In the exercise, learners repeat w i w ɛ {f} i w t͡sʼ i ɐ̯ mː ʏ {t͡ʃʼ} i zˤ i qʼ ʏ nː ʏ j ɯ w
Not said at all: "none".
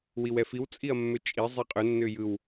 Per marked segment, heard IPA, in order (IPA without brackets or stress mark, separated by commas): f, t͡ʃʼ